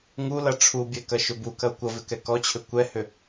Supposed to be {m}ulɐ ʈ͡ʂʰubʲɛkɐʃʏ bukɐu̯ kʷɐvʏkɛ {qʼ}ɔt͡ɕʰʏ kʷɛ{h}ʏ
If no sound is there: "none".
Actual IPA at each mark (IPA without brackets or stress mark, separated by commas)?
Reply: ŋ, k, h